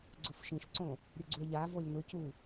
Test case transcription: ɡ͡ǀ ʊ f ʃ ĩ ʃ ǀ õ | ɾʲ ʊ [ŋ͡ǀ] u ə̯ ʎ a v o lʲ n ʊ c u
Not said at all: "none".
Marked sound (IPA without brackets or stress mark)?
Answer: ɡ͡ǀ